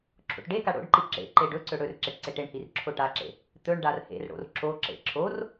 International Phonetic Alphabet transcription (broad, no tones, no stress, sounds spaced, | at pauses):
ǁʰ o̰ ʈ ɖ e k a ɽ o̰ ɖ ǃ i ǁ ḛ ǃ e ɖ ɵ ǀ ɵ ɽ ɵ r ǁ e ʈ ǀ e ʈ e ɳ h i r ǁʰ o ʈ a ǁ ḛ | t̪ ɵ ɳ ɖ a r h ḛ r ɽ o̰ r ǁ o ǁ ḛ ǁʰ o r